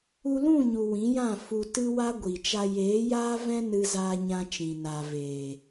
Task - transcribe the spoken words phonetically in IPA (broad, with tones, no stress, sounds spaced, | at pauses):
u˧ l ũ˦˨ ɲ u˨ w ĩ˨˦ j ã˦˨ f u˧ t ɨ˦ w a˦ ɡʷ i˨ t͡ʃ a˧ j eː˨˦ j aː˦ v ɛ̃˦ n ɨ˧ z aː˧ ɲ ã˧ t͡ʃ ĩ˨ n aː˨ v eː˨